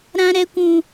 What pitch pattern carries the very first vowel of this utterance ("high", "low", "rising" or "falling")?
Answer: high